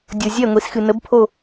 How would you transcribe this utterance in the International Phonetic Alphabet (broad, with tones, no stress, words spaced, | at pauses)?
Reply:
dʲo˨ zʲɛ˦˨ŋʷi˨sxɨ˨ nə˨˦bpʰo˦˨